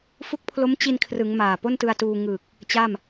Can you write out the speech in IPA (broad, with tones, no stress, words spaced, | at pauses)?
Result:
fu˦˥k̚pʰlo˦˥mt͡ɕi˧nkʰrɯ˩˦ŋ maː˨˩ po˥˩ntɯ˧a̯tuː˧ ŋɯ˨˩k̚ | t͡ɕa˥˩m